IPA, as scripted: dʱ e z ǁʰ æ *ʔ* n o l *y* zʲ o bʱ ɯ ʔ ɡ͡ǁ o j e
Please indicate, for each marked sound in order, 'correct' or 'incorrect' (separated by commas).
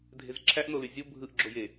correct, correct